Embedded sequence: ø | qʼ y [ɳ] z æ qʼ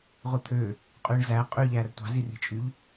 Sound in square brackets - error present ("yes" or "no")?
no